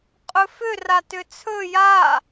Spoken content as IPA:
qʼ ɵ f ʏ r a t ʏ t͡sʰ ɵ j a

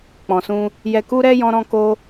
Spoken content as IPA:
k͡p ɔ̃˨ s ũ˧ | j ɛ˧ k u˦ ɾ ɛ˦ j ɔ̃˦ ɾ ɔ̃˦ k o˦

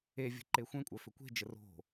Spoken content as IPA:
e vʲ ə̤ ǃ e xʷ ẽ kʷʼ œ f ʏ kʷ e̤ d͡ʒ ə r o̤

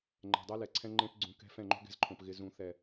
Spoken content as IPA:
ŋ͡ǃ ɛ̤˨ dˤ ɛ˦ l ɛ˨ ǀʰ ɛ̃˦ ŋ͡ǃ ẽ˦ p ɡ͡ǀ ũ˨ k ɛ̤˦ f ɛ̃˦˨ ŋ͡ǃ o̤˦ ɡ ɛ̤˦ z ǃʰ õ˨ p ɣ ɪ˦ z ũ˦ θ ɛ˦˨

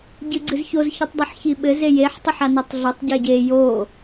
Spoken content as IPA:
ɟ ɨ ɡ͡ǀ ɨ z ç o z ç ɘ tˤ dˤ o ħ ç i ɓ ɘ z e j e ħ tˤ ɘ ħ a n ɛ tˤ ɮ o tˤ ɟ e ɟ e j o

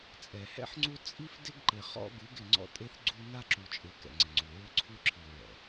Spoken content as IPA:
t͡sʼ ɛ˨ h ɛ̰˦ ħ ŋ͡ǀ u˦ t͡sʼ i˦ f d ɪ˦ ɡ ǃ ɪ˨ χ ɔ̰˦ ɡ u˨˦ ɡ ɪ˨ ŋ͡ǀ ɔ̰˦ tʼ e˦ θ ɡ͡ǀ u˦ n a˦ ǁ u˨ t͡ʃʼ ɪ˨ k ɛ̰˨ ŋ͡ǀ ɪ˨ ŋ͡ǀ u˨ ɹ ʊ˦ ǀʰ u˦ ǁʰ i˨ ɹ ɛ̰˨

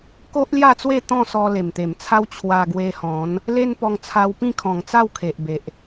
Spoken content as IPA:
k o˦ ʔ l j a˥˧ t͡s w e˥˧ t̪ ɔ̃˥˧ s ɔ˧ l e˨˩ m t̪ e˨˩ m t͡sʰ a˦ w t͡ɕʰ w a˧ ɡ w e˧ h ɔ̃˨˦ n | l e˦ n p ɔ˧ ŋ t͡sʰ a˧ w p ĩ˥˧ kʰ ɔ̃˨˩ ŋ t͡s a˥˧ w kʰ e˨ ʔ b e˨ ʔ

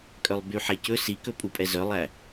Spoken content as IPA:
kʼ œ lˠ b y ħ ɛ c ɵ s i k ɵ pʼ u pʼ ɛ z œ lˠ æ

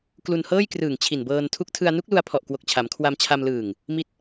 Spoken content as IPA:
k l u˧ n h ɤː˥˩ j k r ɯː˨˩ ŋ t͡ɕʰ i˨˩ n b ɤː˧ n tʰ u˥˩ k̚ tʰ ɯ˧ a̯ n u˦˥ k̚ l u˧ a̯ pʰ ɔ˨˩ ʔ k w o˨˩ k̚ t͡ɕʰ a˩˦ m kʰ w a˧ m t͡ɕʰ a˧ m l ɯː˨˩ ŋ | m i˦˥ t̚

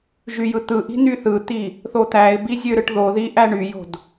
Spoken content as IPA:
ʒ y j ɯ t̪ ɯ ʔ i̤ n̪ y θ ɯ t̪ i | θ o t̪ æ ɪ̯ b i zʲ ø ɾ ɯ ʈ ð o ð i ʔ æ ɳ y j o̤ d

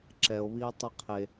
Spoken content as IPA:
ǁ ɛ o̯ β iː tˤ i qʰ e

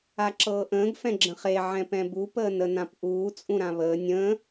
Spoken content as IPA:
a ǁ ɤː ʔ ə̃ː ɡ f ɛ̃ ɡ͡ǁ ə̃ χ e ʕ ɛ̃ p ɛ̃ b u p əː n ə n ã p ʔ uː t͡sʼ ũ ɾ ã β əː nʲ ə̃ː

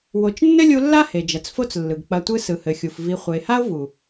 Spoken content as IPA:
w o˨ t͡ʃ nː ɘ˦ lʲ u˧ lː a˦ h e˨ d͡ʒ ɐ˨ t͡s f o˦ t͡s lː ɯ˨ ɡ k͡p ɐ˧ tʷ ɯ˦ s ɯ˨ h ɘ˨ xʲ u˨ f v i˨ χʷ ɘ˨ e̯ h a˦ o̯ v u˨

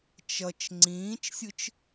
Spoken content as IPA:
t͡ʃ ʌ t͡ʃ ŋ͡ǀ ĩː t͡ʃ sʲ ɯ t͡ʃ

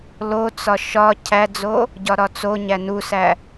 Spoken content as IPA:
l o t͡s ɒ ʃ ɒ cʰ æ d͡z o | ɟ ɒ ɾ ɒ t͡s o ɲ æ n u s æ

